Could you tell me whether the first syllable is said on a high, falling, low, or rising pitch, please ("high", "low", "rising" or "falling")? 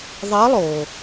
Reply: rising